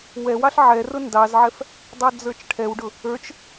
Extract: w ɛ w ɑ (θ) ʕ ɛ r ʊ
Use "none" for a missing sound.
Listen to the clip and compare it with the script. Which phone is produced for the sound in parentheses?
ɬ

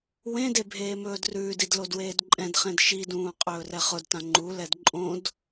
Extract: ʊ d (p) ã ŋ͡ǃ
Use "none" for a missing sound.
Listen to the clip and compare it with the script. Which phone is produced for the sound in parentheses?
t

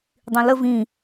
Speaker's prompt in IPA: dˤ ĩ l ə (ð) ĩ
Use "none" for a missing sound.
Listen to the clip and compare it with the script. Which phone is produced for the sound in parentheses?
v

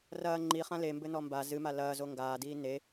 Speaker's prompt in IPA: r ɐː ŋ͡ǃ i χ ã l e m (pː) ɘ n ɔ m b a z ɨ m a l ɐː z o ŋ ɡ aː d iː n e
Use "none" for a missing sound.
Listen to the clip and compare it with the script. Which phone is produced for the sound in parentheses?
b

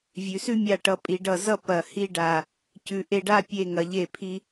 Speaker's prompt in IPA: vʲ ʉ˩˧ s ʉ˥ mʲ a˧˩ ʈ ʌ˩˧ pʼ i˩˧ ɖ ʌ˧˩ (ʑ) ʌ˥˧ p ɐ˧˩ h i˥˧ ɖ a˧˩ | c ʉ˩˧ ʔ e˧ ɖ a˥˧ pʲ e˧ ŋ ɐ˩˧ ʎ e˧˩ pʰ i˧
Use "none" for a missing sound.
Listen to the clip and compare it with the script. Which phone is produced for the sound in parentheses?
z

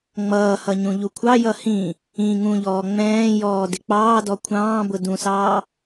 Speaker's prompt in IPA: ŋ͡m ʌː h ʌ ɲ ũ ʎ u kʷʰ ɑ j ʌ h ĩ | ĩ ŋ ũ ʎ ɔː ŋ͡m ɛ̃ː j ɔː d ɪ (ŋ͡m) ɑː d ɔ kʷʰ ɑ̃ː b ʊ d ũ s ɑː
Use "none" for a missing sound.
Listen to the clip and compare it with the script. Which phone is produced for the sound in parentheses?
k͡p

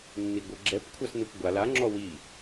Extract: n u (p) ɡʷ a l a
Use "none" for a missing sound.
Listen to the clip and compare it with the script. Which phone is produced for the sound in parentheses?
p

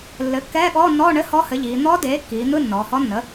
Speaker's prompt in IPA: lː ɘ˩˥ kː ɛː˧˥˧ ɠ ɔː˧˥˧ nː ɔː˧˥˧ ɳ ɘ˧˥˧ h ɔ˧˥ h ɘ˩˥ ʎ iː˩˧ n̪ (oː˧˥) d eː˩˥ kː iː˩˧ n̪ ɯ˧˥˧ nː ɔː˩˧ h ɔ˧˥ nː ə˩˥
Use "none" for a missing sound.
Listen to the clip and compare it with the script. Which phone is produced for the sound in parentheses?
ɔː˧˥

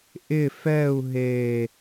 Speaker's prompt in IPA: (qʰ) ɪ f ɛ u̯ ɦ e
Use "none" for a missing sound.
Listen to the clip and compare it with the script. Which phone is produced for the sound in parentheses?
ʔ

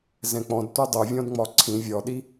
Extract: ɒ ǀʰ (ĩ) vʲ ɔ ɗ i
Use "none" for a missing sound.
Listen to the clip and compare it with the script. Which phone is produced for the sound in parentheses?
ĩ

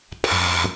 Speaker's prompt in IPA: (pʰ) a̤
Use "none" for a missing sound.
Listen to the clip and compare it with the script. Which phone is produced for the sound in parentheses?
pʰ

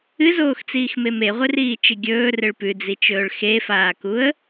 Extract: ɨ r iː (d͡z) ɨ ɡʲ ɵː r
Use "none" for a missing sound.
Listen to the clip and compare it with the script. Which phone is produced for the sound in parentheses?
t͡ʃ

